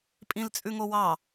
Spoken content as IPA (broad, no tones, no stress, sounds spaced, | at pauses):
pʼ ĩ l t͡sʼ ʉ ŋ o w ɑ